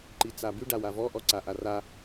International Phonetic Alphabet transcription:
ǃit͡saby ɖawavɔ ʔɔǀaʔara

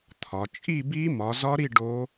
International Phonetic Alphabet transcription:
t̪ʰɒ˨˦ t͡ʃʼi˥˧bi˦˥ mɒ˨˦zɒ˦˥ɾi˥˧ ɖo˦˥

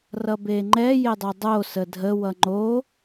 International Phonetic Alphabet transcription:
rʌbeŋ͡ǃɛ jedˤedˤo sədʱə wʌŋ͡ǃo

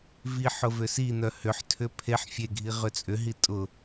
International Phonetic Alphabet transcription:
viħ ʊvʏsin̪œ hʏħtʰʏ pʰeħ fʲeɡʱi ʁʏt͡sʼʏɦi tʼʊ

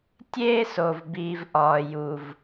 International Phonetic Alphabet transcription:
tʲeː˥so˩v biː˩vʔɒː˩ ju˩v

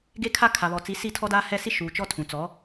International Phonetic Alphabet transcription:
ɡe˦kʰa˦ kʰa˨βɔ˨t͡si˨˦ si˦˨tʰɔ˦daː˦ hɛ˦˨si˦ ʃuː˨ t͡ʃɔ˦ tʰũ˨t͡sɔ˨˦

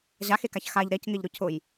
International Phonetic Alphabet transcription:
ʑaxekaç xaʎ ɾɛcŋɪʎɾʊ cʰʊj

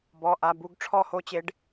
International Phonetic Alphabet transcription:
bɔ˩˧˩ʔa˩˧˩ bu˦ɡ ʈ͡ʂʰɔ˥˨ho˦t͡ɕe˨˦ɖ

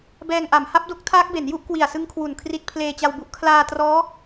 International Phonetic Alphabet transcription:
bɛː˧ŋʔa˩˦m ha˦˥p̚do˦˥k̚tʰaː˦˥k̚be˩˦n ju˥˩ʔkwi˨˩a̯sɯ˦˥ŋ kʰwu˨˩nkʰri˦˥t̚ pʰleː˧t͡ɕa˧wbu˦˥ʔ kʰlaː˧trɔː˦˥

